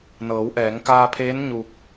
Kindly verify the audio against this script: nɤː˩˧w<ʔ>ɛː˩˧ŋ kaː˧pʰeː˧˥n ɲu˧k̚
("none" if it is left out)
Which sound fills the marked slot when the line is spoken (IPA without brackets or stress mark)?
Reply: ʔ